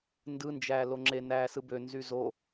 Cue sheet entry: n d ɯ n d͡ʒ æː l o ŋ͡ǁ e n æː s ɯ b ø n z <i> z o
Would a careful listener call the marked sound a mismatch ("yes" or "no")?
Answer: yes